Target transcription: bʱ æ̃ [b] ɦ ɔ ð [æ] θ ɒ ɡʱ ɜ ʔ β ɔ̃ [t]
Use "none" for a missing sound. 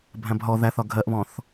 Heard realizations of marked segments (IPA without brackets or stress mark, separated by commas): b, æ, θ